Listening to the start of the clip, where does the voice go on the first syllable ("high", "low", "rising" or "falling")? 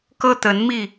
high